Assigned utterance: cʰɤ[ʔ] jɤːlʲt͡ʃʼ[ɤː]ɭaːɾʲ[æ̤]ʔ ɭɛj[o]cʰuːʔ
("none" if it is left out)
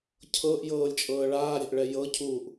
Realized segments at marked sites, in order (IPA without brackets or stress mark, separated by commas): ʔ, ɤː, æ̤, ɤ